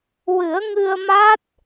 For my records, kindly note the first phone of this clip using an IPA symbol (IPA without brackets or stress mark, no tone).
w